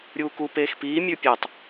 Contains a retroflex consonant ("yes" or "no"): no